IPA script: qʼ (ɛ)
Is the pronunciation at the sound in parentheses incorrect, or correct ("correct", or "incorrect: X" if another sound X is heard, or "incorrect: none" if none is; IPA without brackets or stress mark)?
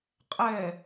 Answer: correct